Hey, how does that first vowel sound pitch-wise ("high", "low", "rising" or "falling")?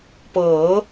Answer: rising